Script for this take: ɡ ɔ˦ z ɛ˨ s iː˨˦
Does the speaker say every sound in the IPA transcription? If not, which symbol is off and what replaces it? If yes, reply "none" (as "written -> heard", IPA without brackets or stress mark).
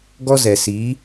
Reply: none